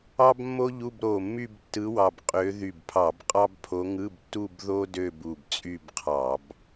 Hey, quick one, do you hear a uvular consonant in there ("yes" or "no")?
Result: yes